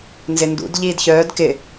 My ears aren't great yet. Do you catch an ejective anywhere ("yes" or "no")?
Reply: no